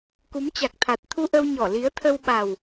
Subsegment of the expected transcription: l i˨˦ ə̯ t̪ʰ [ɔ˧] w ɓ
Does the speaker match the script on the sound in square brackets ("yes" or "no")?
no